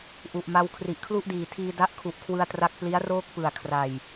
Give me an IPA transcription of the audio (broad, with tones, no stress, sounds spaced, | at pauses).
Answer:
ʔ u˨˩ ʔ m a˧ w kʰ r i˨˩ ʔ kʰ l u˥˩ ʔ d iː˨˩ tʰ iː˧ d a˦˥ ʔ kʰ u˨˩ ʔ kʰ w ɯ˧ a̯ t r a˦˥ k̚ p l i˦˥ a̯ r oː˥˩ k̚ p ɯ˨˩ a̯ kʰ r a˨˩ j